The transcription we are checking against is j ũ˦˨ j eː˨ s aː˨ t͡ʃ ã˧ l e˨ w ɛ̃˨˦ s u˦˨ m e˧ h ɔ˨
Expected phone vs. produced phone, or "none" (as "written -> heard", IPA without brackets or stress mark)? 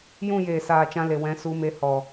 u˦˨ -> u˧